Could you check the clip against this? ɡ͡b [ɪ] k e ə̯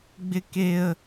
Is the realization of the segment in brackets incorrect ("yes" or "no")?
no